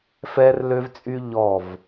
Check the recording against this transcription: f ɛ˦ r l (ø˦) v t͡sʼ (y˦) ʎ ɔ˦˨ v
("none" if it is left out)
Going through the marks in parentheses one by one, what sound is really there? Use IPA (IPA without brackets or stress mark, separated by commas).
ø˦, y˦